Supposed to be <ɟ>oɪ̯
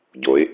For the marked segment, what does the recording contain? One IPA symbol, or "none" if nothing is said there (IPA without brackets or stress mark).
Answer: ɟ